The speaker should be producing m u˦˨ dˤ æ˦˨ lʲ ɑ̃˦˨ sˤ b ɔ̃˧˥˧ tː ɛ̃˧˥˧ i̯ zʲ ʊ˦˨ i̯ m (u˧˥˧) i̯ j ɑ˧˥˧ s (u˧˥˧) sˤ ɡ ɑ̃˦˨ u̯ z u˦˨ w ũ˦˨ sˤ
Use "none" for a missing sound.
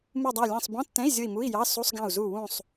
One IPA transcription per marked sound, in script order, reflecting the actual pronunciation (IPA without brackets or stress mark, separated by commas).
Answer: u˧˥˧, u˧˥˧